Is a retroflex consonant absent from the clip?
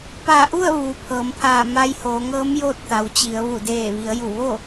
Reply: yes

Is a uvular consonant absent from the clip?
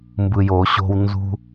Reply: yes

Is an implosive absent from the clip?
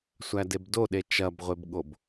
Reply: no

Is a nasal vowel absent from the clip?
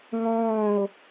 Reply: no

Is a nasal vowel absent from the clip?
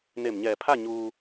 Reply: yes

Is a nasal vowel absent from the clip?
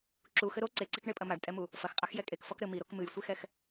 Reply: yes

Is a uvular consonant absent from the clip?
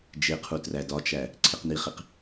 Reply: no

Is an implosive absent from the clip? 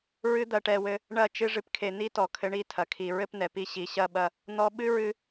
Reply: no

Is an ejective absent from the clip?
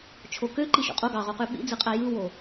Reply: no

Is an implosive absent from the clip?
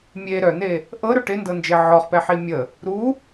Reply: yes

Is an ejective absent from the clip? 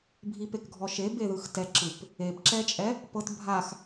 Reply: no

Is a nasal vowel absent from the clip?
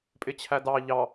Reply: yes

